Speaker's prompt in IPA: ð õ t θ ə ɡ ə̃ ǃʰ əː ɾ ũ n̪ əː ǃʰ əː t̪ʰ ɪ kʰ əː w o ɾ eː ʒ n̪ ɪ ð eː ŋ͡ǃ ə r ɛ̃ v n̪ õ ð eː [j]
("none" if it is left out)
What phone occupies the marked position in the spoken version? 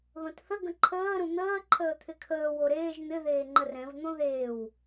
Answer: w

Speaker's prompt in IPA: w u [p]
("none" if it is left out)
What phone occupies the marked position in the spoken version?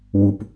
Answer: p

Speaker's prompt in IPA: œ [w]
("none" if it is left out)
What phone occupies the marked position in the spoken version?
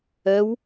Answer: w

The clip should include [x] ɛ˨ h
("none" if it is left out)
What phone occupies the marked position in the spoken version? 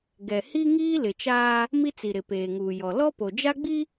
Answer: ɡ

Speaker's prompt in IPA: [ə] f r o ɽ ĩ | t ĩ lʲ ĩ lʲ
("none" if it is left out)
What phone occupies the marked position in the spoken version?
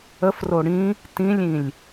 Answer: ə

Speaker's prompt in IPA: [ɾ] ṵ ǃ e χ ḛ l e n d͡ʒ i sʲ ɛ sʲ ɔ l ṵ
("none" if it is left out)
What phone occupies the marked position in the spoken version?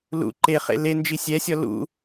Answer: l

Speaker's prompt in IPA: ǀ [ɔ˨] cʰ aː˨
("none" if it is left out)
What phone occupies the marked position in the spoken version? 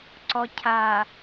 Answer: ɔ˨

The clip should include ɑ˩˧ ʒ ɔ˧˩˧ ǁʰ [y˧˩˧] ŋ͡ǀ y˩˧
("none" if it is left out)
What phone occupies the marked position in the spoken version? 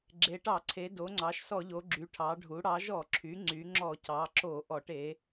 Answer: y˩˧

